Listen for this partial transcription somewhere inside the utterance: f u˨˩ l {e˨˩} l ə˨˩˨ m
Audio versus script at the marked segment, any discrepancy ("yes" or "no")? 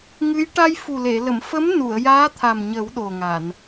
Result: yes